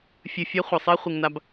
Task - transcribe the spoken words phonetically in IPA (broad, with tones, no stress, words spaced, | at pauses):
fʲɨ˨fʲɐ˦ χʷɐ˨sˤɛ˦ χʷi˨ŋna˦b